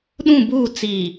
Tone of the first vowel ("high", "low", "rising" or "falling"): falling